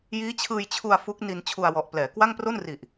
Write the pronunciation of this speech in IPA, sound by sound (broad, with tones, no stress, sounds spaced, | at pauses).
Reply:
j iː˦˥ t͡ɕʰ ɯː˧ j t͡ɕʰ u˧ a̯ f u˦˥ k̚ n i˧ n t͡ɕʰ u˧ a̯ w ɔ˨˩ ʔ p l ɛː˩˦ k w a˥˩ ŋ p r o˥˩ n r i˨˩ ʔ